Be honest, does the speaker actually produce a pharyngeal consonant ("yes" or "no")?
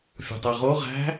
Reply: no